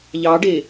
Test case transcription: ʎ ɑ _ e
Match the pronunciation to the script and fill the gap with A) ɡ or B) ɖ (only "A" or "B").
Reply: B